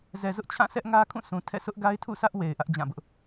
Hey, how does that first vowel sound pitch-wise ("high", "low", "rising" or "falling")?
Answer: low